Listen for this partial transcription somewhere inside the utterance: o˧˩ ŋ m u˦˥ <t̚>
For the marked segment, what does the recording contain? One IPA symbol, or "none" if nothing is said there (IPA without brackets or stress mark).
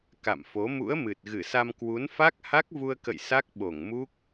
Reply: k̚